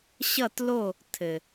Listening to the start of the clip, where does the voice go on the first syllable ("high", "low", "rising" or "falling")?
falling